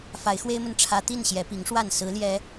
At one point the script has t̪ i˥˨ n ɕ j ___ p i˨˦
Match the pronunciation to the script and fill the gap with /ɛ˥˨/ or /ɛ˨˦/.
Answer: ɛ˨˦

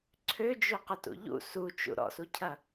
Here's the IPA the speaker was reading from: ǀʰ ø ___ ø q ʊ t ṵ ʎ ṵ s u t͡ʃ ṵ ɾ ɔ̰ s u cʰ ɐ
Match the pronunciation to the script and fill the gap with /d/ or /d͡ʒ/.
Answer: d͡ʒ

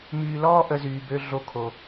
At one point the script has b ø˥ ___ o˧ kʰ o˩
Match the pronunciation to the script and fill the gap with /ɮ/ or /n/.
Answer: ɮ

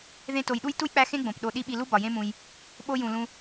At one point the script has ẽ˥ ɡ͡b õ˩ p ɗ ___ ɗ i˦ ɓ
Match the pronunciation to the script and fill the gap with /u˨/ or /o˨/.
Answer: o˨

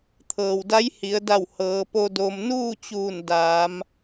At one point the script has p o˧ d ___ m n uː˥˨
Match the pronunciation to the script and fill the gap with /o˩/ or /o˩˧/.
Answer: o˩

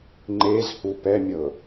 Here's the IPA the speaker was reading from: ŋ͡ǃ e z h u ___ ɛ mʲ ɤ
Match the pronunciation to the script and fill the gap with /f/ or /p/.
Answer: p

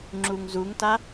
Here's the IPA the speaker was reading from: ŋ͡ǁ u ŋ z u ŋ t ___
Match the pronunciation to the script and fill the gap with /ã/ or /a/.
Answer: a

